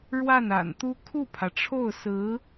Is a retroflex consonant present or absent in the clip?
present